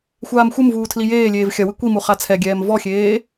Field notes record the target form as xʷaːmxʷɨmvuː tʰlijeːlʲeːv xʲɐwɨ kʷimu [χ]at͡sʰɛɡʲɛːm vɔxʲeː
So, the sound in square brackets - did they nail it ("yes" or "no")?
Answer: yes